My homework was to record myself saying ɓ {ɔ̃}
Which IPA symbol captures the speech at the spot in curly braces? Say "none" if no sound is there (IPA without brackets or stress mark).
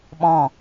ɔ̃